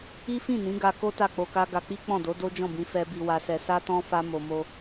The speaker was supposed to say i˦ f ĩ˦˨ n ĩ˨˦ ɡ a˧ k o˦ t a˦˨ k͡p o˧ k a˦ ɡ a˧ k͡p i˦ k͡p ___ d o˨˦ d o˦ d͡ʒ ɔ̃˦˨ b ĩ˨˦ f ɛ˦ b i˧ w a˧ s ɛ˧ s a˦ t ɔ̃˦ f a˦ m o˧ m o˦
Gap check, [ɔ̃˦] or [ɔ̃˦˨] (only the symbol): ɔ̃˦˨